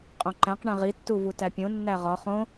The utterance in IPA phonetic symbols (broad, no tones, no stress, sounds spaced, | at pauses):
qʼ õ ǃ æ̃ q ɳ ẽ ʁ i tː u v u t æ pʲ õ nː æ ʁ ɒ χ õ